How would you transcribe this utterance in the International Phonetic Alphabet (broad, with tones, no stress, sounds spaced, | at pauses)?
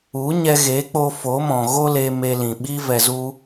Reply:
u˨˦ ɲ ɛ˧ ɣ eː˨˦ k͡p o˧ f o˨˦ m ɔ̃˨ ɣ o˦ l eː˧ m e˧ l ĩ˨ ɓ i˦ v ɛ˧ z u˦